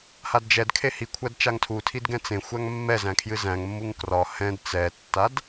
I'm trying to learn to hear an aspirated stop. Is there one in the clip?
yes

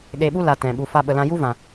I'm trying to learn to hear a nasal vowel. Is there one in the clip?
yes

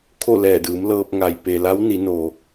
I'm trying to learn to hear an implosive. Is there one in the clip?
no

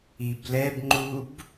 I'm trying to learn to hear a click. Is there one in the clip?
yes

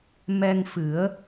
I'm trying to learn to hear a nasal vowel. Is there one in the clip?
no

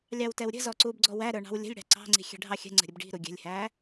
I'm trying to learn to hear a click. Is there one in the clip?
yes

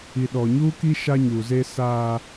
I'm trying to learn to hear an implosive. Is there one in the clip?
yes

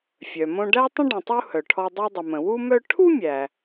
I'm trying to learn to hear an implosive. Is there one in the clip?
no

